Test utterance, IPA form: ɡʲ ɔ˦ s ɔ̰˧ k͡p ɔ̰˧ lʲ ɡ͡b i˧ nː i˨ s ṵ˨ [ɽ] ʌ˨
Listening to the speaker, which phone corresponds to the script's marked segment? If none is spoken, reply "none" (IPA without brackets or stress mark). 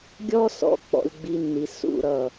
ɾ